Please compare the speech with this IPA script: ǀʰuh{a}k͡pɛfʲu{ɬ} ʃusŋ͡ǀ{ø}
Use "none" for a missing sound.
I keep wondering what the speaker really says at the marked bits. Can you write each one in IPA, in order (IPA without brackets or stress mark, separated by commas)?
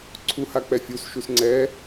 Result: a, s, ɛ